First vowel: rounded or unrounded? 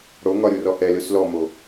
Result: rounded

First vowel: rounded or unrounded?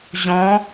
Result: rounded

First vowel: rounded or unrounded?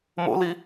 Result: rounded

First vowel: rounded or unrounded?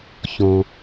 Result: rounded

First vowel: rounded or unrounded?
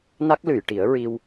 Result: unrounded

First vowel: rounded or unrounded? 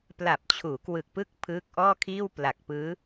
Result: unrounded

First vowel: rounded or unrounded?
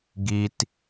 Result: unrounded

